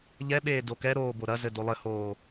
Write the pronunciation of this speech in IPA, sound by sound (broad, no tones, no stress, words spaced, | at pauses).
ʎɛɓeː dokɛɾoː boɾɐzɘ dolˠɘhoː